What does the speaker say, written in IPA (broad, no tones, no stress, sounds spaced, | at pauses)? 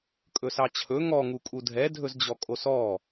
kʼ ɵ s ɑ t͡ɕʰ ɵ ŋ ɔ ŋ u kʼ u dʱ ɛ dʱ ɵ z d͡ʑ ɔ kʼ o s ɔ